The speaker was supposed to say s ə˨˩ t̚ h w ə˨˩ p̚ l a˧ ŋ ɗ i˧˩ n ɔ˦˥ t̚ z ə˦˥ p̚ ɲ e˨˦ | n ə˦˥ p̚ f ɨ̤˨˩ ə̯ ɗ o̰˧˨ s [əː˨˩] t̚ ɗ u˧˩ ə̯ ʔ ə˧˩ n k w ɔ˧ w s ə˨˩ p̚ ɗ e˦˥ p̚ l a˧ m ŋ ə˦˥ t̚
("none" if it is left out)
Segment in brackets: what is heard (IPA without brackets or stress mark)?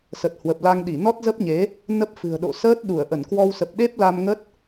əː˦˥